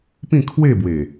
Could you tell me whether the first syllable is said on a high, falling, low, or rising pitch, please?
falling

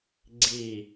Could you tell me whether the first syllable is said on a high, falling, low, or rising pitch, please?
falling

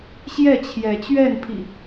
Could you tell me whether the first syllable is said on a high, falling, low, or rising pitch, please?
falling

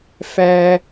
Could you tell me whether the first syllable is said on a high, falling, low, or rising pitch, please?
high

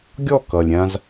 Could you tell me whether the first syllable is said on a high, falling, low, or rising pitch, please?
falling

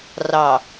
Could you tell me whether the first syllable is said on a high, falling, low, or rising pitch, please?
low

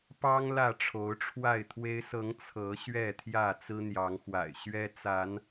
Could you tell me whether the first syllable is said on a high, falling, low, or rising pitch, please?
high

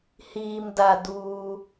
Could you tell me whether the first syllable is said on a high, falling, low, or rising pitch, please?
low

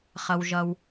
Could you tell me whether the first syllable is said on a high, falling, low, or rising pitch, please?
low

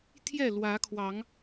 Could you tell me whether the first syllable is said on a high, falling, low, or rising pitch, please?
falling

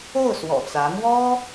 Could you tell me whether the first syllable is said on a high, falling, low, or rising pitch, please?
falling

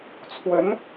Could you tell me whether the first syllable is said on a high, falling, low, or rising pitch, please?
rising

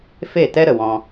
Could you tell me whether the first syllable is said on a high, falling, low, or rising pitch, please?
falling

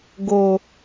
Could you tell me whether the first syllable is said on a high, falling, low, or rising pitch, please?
low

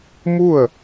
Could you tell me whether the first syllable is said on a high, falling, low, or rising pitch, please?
falling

